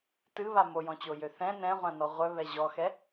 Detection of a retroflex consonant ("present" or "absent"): absent